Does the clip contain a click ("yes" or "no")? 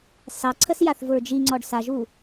yes